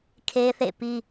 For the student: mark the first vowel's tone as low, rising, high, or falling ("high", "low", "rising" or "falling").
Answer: high